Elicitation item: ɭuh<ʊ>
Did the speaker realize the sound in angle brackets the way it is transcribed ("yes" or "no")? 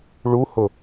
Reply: yes